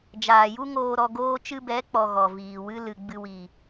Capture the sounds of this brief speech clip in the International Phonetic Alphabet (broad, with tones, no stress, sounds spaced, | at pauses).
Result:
d͡ʒ aː˨ j u˦ ŋ oː˧ ɾ ɔ˧ ɡ oː˧ t͡ʃ ɨ˧ b ɛ˨˦ k͡p ɔ˧ ɣ ɔ˨ v iː˨ w ɨ˦ l ɨ˧ ɡ͡b ɨ˧ w i˨